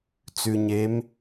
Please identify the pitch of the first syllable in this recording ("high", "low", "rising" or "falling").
low